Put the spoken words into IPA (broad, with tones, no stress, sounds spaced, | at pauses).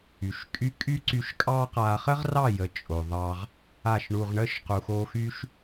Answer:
y˨ ʃ kʼ y˦ kʼ y˦ ǀ y˧ ʃ kʼ ɑ˦ q a˧ χ ə˦ ʁ r ɑ˦˨ j ə˨ t͡ʃʼ o˨ ðˤ ɑ˧ ʁ | a˦˨ ʃ ɳ u˧ ʁ ɳ ə˦ ʃ q u˨ x o˧ x y˦ ʃ